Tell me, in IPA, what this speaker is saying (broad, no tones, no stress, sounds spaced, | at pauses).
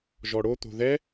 ʒ ɔ ɽ o t̪ o̤ ð ɛ